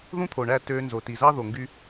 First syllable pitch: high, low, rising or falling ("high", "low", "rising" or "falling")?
high